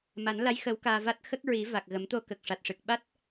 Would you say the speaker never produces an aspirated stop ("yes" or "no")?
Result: yes